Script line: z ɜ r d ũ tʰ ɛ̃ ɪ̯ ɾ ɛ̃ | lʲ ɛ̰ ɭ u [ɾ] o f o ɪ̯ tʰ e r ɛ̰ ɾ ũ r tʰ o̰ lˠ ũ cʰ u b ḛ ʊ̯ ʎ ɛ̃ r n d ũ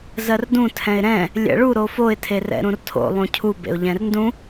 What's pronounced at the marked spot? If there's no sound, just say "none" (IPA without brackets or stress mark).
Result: ɾ